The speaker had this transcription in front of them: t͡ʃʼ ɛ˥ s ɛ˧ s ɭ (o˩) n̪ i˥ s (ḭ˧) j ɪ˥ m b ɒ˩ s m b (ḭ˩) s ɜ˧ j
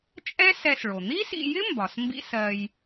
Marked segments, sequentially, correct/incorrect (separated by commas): correct, correct, incorrect